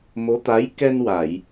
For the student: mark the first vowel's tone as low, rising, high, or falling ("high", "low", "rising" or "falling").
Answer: rising